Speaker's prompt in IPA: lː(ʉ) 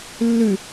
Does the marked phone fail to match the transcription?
no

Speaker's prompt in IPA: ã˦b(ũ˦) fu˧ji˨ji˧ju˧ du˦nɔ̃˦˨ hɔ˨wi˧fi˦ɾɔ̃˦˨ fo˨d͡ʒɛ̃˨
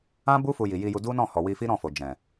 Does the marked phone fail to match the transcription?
yes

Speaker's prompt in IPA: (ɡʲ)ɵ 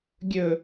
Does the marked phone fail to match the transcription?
no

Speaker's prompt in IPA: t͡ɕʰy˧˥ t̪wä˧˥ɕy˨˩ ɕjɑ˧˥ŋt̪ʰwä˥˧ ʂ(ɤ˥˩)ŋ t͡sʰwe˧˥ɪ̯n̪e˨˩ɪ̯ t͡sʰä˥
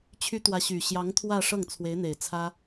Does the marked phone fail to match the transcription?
no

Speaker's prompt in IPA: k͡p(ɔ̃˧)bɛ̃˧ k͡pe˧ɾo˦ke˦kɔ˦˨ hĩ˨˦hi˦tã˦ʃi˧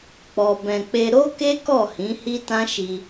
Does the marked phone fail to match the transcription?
yes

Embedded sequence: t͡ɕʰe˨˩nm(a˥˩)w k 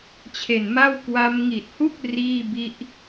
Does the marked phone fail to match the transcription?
no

